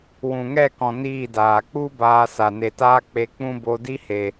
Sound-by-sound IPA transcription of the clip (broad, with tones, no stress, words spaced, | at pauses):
wũ˨ŋɛ˦˨kɔ̃˨ niː˦˨daː˨ k͡pu˦ baː˧sa˨ ne˨taː˦ k͡pe˧k͡pũ˦bo˧ di˦he˨